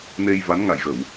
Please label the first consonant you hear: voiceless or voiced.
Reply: voiced